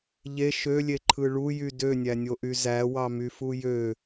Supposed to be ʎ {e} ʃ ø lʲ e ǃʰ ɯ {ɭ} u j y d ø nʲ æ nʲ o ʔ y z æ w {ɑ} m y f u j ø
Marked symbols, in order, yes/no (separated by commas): yes, yes, yes